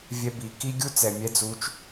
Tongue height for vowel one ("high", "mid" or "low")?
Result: mid